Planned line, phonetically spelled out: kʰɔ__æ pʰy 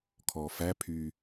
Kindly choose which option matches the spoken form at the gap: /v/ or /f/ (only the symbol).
f